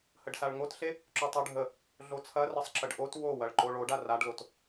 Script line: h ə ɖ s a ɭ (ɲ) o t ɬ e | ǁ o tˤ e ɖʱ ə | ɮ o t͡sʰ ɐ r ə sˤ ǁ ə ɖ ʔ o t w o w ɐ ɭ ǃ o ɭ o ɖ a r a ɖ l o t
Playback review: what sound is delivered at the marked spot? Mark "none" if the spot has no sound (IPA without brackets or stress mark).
ŋ